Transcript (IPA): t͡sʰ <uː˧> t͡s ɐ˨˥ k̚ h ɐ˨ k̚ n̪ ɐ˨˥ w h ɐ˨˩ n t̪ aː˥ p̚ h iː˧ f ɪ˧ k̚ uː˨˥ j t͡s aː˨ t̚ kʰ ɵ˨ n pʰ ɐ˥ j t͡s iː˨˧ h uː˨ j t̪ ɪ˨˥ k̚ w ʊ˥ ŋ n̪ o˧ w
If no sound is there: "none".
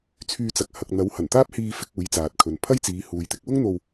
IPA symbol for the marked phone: yː˧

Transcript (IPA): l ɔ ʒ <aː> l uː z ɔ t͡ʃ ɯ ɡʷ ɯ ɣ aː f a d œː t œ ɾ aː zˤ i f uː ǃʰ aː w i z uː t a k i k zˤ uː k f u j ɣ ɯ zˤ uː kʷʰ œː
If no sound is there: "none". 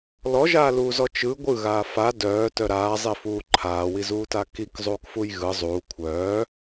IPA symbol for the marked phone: aː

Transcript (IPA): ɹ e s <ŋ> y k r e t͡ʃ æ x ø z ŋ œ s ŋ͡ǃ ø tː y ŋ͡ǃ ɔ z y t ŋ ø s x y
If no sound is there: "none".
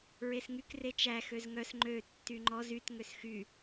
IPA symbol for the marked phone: ŋ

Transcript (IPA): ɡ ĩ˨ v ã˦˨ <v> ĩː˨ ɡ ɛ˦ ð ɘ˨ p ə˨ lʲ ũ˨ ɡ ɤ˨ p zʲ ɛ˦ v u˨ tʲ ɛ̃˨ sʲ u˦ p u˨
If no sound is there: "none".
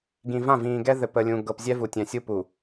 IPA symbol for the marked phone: v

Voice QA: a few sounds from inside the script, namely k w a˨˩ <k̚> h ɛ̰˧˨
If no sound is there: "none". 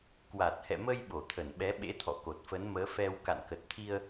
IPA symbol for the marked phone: t̚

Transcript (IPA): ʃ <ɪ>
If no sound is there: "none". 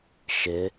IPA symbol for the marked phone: ɪ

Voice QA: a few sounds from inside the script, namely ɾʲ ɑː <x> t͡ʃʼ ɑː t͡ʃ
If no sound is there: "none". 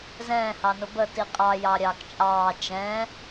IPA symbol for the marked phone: k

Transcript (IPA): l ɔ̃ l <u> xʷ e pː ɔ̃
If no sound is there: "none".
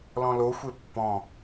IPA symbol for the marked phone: o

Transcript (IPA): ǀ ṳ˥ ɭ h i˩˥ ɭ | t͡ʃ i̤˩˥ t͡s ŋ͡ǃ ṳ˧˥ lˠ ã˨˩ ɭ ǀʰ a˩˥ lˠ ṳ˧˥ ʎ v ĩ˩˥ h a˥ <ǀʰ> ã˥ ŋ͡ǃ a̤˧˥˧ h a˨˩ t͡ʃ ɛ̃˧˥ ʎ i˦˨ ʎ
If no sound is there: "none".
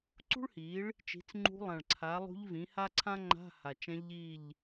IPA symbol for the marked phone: ǀʰ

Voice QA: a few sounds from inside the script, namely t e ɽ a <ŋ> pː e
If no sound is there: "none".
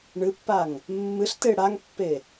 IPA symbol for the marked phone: ŋ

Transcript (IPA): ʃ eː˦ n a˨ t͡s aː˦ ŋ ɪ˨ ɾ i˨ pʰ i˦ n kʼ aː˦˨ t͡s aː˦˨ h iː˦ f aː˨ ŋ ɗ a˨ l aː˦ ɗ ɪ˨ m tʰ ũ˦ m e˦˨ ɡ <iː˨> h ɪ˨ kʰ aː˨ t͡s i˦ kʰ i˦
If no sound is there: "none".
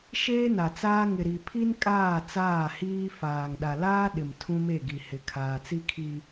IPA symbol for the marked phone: i˨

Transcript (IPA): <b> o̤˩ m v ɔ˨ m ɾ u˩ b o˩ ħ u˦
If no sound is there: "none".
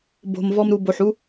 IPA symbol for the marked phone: b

